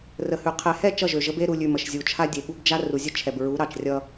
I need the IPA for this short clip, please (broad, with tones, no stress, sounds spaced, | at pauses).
r ə˨ h ʉ˨ qʰ ɛ˨ h ɛ˦˨ t͡ʃ ʌ˦˨ ʒ ø˨ ʒ ə˦ b e˦ ɾ u˨ lʲ ʉ˨ m ə˨ ʃ zʲ u˨ t͡ʃʰ a˦ dʲ e˨ ɠ u˦ b d͡ʒ a˦ r u˨ zʲ ə˦ t͡ʃʰ ɛ˨ b ɹ u˨˦ ɾ ɑ˨ t͡ʃ rʲ ʌ˦